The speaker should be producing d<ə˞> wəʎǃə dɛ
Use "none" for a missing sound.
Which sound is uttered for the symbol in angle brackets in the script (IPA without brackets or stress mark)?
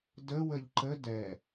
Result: ə